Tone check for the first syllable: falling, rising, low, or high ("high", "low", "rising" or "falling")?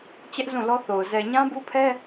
high